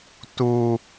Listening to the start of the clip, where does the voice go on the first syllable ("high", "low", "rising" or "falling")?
low